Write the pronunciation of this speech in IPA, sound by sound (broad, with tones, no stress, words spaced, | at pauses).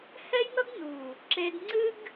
hɛ˦jnʌ˦ɡnu˨ | ǁe˧dŋ͡ǀɨ˦ɡ